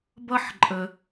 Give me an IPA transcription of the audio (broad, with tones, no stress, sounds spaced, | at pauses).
b ʌ˥ ħ ǃʼ ə˧